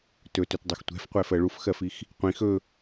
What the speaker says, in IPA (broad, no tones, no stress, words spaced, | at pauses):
tɵtɵtdˤɛx tʷɛ̤fqʷɛfɜ ɭufxɜfix | qʷĩ xɵ